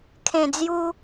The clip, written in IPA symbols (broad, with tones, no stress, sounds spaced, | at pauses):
kʰ ẽ˨˩ d͡z j u˧